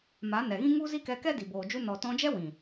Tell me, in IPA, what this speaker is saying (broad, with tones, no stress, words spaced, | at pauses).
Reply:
ma˨˦nɛ˨ɣĩ˦ ŋu˦zi˦kɛ˧ kɛ˦di˨ boː˨ d͡ʒu˧nɔ˨ tɔ̃˧d͡ʒɛ˦ wĩ˨